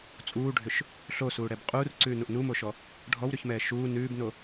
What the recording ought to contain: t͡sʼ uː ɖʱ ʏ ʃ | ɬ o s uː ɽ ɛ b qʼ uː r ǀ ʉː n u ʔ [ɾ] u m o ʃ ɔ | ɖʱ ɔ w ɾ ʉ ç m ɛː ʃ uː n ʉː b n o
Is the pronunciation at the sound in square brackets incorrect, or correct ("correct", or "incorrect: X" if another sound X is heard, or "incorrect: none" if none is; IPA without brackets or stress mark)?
incorrect: n